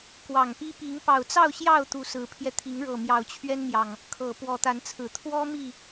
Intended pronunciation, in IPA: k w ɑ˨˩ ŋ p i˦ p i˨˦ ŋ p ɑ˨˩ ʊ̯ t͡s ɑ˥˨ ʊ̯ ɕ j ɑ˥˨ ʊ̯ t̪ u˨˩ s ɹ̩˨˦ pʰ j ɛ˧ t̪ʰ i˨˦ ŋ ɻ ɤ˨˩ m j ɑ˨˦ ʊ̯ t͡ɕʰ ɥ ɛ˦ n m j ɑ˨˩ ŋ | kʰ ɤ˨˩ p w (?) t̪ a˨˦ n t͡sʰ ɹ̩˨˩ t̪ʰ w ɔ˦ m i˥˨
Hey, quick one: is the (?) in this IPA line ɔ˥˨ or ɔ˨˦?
ɔ˨˦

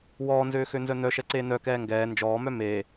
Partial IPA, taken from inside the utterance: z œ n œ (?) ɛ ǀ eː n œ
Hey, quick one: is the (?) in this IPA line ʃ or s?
ʃ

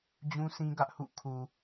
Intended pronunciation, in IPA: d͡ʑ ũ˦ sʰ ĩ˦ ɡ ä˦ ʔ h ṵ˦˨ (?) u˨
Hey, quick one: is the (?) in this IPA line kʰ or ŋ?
kʰ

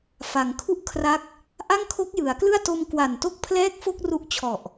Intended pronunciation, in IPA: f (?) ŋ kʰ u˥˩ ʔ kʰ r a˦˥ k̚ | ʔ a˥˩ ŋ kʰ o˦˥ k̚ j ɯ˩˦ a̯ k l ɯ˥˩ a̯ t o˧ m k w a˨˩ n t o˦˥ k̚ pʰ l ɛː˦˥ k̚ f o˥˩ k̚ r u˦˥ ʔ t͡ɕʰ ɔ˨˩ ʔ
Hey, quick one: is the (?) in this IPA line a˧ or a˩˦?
a˩˦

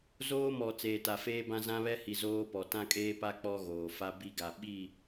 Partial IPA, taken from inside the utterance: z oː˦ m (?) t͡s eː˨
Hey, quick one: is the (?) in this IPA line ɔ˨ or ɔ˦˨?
ɔ˨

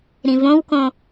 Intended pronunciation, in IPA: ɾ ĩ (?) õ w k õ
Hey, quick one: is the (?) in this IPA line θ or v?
v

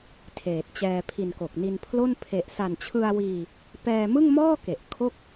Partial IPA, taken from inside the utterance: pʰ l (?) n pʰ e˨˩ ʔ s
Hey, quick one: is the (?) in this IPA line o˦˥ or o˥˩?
o˥˩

